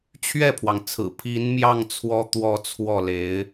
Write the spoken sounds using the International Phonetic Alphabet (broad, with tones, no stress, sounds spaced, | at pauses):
t͡ɕʰ ɥ ɛ˥˩ pʰ w ɑ˩ ŋ t͡sʰ ɹ̩˨˩ pʰ i˧˥ n m j ɑ˥˩ ŋ t͡sʰ w ɔ˥ t̪ w ɔ˥˧ t͡sʰ w ɔ˥˩ l e˧˥ ɪ̯